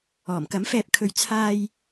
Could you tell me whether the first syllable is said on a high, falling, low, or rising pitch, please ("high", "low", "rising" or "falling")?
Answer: low